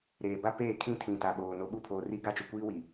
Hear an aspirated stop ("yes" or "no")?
yes